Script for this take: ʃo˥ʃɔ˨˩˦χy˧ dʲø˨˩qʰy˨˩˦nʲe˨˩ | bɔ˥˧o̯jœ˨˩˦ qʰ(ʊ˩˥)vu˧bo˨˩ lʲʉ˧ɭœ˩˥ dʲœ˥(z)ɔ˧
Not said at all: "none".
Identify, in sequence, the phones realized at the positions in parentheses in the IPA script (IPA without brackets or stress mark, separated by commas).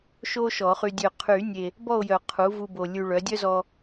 u˩˥, z